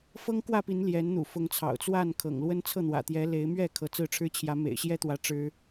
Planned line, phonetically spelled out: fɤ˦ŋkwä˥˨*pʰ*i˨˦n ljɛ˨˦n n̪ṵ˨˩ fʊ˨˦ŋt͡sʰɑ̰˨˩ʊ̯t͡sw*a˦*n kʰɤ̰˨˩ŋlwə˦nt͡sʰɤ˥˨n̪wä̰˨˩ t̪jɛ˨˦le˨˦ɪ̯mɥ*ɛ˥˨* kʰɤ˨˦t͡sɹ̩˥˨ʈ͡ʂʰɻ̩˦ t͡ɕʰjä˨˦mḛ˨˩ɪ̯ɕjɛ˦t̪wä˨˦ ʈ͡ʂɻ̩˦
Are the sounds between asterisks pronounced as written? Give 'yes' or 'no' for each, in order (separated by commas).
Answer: no, no, yes